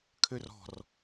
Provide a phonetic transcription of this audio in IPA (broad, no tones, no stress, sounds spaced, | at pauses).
kʰ ø r ɔ̤ r